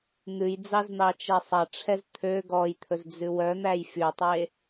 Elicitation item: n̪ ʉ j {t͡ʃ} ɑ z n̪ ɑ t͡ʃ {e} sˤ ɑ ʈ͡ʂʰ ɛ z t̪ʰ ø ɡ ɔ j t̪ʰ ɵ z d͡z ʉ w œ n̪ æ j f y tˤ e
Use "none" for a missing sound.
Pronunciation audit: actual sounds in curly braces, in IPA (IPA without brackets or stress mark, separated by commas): d͡z, ɛ